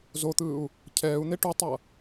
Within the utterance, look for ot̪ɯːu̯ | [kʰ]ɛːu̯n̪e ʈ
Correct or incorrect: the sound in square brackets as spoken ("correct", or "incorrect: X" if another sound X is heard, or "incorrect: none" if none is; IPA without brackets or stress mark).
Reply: incorrect: cʰ